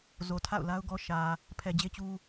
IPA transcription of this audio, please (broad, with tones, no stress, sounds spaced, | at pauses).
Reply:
z o˨ tʰ a̰˦˨ ʊ̯ l a˦ ʊ̯ ɡ ɔ˦ ʃ ä˨ | pʰ ɛ˨ d͡ʑ e˦ t͡ɕ u˦